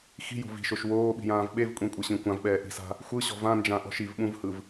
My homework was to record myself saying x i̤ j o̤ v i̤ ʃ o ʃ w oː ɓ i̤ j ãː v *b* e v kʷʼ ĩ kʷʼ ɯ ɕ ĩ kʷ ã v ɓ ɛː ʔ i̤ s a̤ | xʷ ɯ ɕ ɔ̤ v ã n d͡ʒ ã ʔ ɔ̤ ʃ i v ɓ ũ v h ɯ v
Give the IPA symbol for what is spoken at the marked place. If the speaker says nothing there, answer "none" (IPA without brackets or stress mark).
ɓ